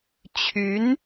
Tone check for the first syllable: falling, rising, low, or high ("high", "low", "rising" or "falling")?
rising